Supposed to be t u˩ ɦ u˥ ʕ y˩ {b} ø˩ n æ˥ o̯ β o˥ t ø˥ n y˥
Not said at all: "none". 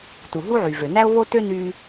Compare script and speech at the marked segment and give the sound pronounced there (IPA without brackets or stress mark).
v